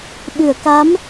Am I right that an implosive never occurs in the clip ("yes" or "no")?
no